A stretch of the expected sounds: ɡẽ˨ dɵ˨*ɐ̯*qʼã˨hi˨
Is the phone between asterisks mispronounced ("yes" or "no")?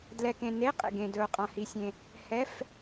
yes